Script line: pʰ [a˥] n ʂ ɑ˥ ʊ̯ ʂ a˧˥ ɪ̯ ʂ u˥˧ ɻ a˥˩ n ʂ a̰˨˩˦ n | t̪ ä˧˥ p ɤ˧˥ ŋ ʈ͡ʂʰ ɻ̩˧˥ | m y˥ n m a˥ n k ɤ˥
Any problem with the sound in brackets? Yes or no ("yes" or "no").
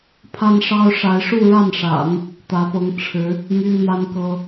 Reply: no